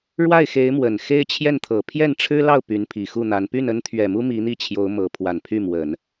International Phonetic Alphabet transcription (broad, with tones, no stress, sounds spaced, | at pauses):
ɻ w a˥˩ ɪ̯ x e˧˥ ɪ̯ m w ə˨˩ n x e˥ ɪ̯ t͡ɕʰ j ɛ˥˩ n t̪ʰ ɤ˨˩ pʰ j ɛ˥˩ n ʈ͡ʂʰ ɻ̩˥ l ɑ˥˩ ʊ̯ p y˧˥ n pʰ i˨˩ x u˥˩ n̪ a˧˥ n p y˥˩ n ə˥ n t̪ʰ ɥ ɛ˨˩ m u˥ m i˧˥ n̪ i˥˩ t͡ɕʰ j o˧˥ ʊ̯ m ɤ˧˥ pʰ w a˨˩ n pʰ y˥˩ m w ə˨˩˦ n